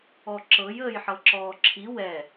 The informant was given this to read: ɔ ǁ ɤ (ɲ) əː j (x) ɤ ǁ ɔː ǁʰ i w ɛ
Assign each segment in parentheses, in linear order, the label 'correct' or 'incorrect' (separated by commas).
incorrect, incorrect